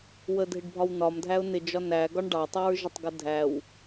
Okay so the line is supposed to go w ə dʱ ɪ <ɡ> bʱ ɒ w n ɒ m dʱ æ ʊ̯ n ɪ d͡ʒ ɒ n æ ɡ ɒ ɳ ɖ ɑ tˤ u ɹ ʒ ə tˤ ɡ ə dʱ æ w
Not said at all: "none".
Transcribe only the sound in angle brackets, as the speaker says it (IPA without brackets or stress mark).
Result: ɖ